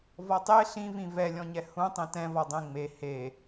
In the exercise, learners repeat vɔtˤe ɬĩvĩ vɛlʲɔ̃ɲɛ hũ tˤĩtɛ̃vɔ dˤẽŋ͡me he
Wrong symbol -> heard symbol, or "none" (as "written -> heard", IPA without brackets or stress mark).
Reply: none